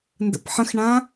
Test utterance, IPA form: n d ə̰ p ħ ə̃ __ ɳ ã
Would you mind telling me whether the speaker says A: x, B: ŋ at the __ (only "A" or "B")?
A